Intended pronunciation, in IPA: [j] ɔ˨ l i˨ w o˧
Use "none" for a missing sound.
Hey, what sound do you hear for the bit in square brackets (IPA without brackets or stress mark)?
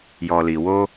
j